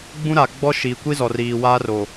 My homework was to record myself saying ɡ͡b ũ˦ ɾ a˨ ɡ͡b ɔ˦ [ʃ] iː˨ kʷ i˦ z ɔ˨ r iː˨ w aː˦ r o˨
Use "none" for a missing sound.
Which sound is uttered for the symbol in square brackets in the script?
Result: ʃ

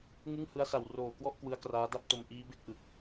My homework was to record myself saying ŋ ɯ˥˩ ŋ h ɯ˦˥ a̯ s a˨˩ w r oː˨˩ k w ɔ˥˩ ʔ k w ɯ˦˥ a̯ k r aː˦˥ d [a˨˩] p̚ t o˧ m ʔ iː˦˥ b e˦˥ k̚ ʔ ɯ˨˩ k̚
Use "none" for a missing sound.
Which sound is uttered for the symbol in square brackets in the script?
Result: a˥˩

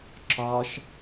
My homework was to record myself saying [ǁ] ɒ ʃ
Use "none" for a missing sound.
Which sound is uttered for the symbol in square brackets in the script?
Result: ǁ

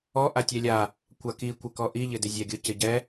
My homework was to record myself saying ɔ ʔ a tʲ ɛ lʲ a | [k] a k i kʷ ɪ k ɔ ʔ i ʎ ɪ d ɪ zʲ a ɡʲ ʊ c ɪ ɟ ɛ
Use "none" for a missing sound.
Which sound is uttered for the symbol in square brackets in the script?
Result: kʷ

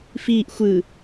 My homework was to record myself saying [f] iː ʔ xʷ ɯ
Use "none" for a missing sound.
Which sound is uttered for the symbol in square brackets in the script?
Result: f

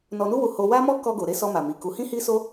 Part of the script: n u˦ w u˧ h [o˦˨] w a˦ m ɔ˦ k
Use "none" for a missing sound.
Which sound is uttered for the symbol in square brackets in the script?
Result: o˧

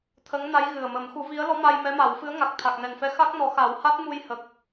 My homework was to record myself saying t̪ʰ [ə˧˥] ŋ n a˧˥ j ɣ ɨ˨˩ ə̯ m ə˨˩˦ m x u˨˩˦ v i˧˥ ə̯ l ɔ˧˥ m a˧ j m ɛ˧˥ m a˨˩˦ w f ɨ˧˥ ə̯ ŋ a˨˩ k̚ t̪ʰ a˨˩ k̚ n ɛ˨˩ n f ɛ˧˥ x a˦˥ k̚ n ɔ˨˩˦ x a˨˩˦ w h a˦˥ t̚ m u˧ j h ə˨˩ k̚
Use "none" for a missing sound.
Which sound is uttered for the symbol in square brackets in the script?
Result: ə˧˥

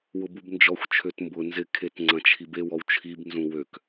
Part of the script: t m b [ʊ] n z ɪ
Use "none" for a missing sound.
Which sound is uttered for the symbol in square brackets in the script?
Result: ʊ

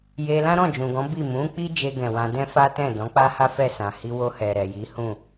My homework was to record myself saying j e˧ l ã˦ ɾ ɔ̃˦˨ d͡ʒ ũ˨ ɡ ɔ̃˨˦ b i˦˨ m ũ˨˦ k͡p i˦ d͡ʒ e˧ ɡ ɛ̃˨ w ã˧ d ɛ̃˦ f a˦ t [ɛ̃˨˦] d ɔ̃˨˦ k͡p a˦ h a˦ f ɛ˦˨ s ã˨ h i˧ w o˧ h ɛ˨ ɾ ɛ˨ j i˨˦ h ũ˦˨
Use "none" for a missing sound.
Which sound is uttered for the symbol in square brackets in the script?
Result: ɛ̃˦˨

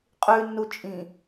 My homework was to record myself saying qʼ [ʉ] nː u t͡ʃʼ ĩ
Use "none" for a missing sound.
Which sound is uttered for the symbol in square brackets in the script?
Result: ʉ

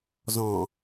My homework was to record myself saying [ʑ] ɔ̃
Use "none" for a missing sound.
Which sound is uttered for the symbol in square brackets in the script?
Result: z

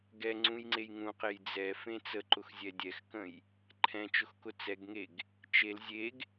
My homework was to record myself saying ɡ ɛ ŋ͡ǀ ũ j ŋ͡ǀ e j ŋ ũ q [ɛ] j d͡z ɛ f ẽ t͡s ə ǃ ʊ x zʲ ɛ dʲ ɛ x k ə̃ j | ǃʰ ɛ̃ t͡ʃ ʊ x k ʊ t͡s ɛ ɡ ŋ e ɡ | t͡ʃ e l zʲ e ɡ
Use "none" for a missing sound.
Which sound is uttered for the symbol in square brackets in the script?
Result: e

